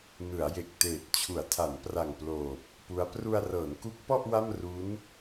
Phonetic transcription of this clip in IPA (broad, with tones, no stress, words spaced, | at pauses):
nɯ˩˦a̯je˨˩k̚teː˨˩t̚ t͡ɕʰu˩˦a̯tʰa˩˦npra˨˩ŋploː˨˩p̚ | pu˦˥a̯ pru˧a̯rɤː˩˦nku˦˥k̚pɔ˥˩ʔ wa˥˩mru˦˥n